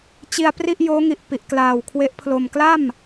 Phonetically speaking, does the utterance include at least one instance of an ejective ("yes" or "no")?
no